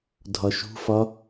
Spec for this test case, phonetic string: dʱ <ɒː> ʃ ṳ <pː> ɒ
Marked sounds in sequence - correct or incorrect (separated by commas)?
incorrect, incorrect